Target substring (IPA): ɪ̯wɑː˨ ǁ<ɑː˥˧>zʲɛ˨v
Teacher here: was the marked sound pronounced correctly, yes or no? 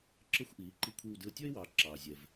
no